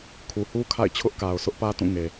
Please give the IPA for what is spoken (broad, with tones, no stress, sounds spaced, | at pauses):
kʰ u˨ h u˦ kʰ a̰˦˨ ɪ̯ t͡ɕʰ ʊ˦ ʔ k a˨ ʊ̯ s ʊ˦ ʔ p ä˦ t ũ˦˨ ŋ e˨